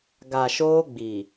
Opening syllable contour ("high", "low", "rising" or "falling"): low